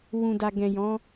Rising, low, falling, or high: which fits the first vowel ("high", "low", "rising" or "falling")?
low